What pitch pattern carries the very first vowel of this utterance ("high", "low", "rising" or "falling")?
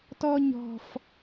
high